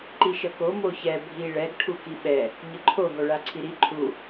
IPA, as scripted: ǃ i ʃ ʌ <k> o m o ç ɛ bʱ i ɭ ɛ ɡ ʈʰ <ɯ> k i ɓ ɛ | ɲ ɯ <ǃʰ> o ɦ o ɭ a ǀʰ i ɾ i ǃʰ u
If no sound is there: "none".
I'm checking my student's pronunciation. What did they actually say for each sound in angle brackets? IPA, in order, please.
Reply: k, u, ǃʰ

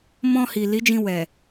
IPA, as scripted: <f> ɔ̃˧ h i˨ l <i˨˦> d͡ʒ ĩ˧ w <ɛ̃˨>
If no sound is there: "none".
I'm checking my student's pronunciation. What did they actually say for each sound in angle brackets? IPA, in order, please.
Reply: m, i˨˦, ɛ˨

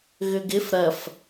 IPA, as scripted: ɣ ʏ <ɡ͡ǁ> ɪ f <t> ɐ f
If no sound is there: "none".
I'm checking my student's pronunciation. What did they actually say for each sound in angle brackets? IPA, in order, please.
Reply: ɡ, ɾ

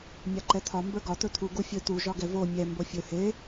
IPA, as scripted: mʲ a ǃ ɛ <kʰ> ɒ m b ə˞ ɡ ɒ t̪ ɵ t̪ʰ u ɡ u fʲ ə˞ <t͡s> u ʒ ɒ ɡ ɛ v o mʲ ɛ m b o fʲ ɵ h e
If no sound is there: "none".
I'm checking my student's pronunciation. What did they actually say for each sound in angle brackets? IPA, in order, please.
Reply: t̪ʰ, t̪

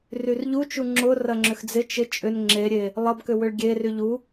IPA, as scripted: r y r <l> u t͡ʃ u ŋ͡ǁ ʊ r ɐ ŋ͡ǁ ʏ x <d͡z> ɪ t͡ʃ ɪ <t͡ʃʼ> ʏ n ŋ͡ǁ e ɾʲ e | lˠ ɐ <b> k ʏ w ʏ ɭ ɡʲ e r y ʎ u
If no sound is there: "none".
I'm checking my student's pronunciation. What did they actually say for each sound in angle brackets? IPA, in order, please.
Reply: ʎ, d͡z, t͡ʃʼ, b

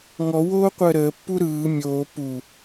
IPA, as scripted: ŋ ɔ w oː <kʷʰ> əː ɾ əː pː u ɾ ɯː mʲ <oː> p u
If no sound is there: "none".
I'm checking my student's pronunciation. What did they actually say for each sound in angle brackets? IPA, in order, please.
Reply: qʷ, oː

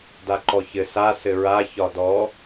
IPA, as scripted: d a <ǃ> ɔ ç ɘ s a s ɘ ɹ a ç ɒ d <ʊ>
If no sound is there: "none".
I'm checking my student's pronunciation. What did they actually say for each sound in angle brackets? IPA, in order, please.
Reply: ǃ, ɔ

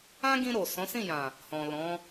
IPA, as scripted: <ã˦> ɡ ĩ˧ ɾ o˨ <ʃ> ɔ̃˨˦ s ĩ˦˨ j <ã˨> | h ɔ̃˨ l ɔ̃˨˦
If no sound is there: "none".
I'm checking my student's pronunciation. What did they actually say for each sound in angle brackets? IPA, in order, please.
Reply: ã˦, s, ã˨

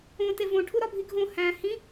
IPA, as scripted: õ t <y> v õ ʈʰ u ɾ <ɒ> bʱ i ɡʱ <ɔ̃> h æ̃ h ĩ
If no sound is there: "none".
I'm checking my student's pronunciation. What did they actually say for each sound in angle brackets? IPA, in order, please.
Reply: e, ɒ, õ

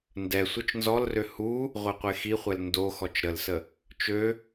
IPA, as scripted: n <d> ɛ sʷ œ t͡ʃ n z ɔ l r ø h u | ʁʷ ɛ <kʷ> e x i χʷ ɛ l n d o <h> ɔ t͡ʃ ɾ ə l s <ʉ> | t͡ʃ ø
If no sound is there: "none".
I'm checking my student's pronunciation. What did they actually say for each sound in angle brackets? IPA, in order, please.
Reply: d, qʷ, x, ə

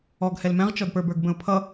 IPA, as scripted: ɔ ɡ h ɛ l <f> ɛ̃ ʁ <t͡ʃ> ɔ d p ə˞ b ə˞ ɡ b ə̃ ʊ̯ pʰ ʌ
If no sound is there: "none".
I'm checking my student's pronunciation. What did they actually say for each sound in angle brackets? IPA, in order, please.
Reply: m, t͡ʃ

